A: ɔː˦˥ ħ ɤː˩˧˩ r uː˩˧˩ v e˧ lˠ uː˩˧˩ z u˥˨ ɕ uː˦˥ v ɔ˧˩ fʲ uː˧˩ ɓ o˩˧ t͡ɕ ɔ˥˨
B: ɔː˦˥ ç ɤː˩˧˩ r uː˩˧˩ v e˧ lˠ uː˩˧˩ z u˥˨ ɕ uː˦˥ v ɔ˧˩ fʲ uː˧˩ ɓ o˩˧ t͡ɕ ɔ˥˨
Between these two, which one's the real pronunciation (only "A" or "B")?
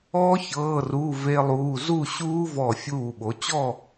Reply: B